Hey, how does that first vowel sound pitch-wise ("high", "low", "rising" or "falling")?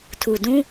low